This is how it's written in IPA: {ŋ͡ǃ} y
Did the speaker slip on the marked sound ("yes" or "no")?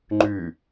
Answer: no